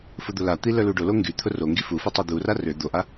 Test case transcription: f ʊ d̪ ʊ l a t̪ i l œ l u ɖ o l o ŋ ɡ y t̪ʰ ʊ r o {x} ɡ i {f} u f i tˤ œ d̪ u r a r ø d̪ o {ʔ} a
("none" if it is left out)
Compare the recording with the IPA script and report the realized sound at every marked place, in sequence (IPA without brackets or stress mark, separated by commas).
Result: ŋ, f, ʔ